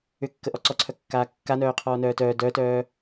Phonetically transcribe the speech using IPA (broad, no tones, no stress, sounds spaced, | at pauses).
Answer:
ʏ kː ə ʔ ɔ ǀ ɔ ǀʰ œ kː aː kː a n œː qʰ ɔː n œː t œː d œ t œː